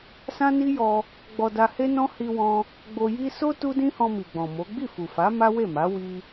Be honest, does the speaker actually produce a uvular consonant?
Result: no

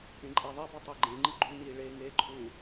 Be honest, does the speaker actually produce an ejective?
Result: yes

